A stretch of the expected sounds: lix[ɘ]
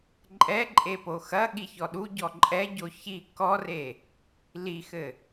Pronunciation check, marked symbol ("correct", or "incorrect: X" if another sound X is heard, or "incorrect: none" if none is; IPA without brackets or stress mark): correct